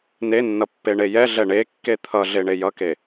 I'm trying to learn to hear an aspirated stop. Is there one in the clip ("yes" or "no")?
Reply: yes